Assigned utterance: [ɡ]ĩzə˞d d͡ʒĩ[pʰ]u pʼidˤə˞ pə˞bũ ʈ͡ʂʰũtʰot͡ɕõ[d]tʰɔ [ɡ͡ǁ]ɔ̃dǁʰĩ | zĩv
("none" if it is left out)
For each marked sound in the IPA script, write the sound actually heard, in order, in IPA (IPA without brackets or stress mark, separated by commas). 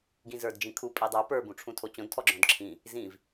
ɡ, kʰ, d, ɡ͡ǁ